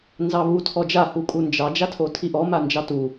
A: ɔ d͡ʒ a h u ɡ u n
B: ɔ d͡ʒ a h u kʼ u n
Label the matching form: B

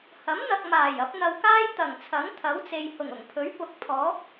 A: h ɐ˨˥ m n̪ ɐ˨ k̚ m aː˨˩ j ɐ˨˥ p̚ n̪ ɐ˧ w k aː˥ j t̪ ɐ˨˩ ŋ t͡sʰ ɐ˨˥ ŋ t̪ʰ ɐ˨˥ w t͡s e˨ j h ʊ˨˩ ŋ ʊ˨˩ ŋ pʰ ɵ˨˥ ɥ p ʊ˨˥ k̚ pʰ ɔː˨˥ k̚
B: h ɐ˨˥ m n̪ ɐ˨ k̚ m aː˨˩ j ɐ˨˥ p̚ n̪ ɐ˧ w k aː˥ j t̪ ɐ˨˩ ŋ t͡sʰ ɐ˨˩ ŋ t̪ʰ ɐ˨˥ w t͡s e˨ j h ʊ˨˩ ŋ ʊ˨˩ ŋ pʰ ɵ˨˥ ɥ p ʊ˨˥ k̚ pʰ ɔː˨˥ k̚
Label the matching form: A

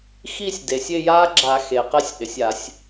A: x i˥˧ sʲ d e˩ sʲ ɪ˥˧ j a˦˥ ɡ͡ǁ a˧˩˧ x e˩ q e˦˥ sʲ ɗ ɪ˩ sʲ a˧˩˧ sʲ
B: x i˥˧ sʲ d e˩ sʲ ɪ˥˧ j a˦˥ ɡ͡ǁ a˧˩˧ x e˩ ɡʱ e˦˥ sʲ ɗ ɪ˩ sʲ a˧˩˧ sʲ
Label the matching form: A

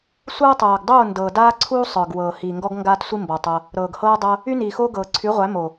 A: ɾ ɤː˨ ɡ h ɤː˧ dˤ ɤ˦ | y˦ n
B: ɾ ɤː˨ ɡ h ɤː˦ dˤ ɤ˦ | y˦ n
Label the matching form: B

